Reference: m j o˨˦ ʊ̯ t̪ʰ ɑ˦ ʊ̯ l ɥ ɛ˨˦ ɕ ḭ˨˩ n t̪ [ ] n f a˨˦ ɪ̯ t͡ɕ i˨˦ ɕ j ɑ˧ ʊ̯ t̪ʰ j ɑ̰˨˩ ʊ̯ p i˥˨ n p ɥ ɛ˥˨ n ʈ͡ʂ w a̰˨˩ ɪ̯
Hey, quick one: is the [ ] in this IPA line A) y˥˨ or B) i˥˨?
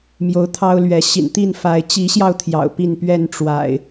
B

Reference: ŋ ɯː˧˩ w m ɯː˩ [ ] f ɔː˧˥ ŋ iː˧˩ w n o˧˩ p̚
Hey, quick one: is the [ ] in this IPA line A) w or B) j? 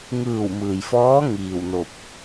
B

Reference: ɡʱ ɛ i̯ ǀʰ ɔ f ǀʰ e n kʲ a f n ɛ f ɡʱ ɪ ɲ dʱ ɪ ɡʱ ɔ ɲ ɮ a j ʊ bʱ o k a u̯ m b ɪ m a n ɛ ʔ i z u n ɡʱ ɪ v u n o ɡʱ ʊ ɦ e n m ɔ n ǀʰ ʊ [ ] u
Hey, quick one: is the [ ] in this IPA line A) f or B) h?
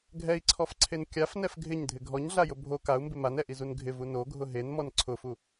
A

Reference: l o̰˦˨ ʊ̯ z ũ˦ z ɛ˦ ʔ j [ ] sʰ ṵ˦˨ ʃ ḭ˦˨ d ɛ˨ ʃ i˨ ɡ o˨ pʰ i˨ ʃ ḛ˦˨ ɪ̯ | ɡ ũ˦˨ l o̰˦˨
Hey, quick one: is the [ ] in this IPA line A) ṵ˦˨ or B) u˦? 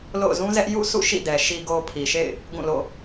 A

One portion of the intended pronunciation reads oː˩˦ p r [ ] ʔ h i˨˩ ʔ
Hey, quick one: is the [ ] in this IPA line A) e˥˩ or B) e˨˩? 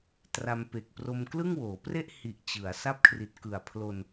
A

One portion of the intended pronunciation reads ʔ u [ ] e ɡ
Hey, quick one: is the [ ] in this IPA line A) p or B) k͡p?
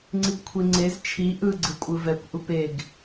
A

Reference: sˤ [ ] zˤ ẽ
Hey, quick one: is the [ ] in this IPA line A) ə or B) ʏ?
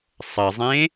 A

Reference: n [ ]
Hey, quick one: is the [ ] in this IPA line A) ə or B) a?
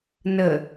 A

